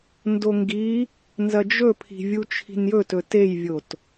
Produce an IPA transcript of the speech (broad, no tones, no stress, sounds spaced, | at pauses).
n d o ŋ ɡ i | n z ɐ d͡ʒ ɵ pʰ i̤ vʲ u t͡ʃʰ i̤ n j ɵ t ɵ t e j vʲ o t